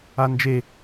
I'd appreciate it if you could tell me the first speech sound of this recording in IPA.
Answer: a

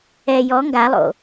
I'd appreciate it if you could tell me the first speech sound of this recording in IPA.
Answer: ɛ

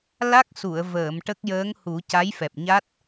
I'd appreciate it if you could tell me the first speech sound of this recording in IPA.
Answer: l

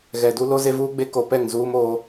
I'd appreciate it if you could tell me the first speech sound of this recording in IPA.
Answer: ɣ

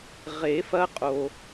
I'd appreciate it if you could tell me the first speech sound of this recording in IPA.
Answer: ʁ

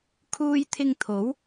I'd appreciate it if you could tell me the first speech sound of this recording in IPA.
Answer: kʰ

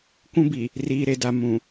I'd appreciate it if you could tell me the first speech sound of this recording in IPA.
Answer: kʷ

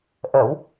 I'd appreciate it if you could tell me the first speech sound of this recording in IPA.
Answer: ʔ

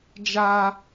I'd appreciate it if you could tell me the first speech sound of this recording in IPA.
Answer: d͡ʒ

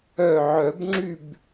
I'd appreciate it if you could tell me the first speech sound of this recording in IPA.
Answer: œ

